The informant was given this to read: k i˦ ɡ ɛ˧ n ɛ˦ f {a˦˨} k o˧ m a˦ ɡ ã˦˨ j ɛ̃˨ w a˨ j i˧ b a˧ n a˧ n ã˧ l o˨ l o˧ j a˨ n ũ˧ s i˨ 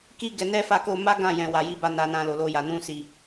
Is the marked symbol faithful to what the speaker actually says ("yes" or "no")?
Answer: yes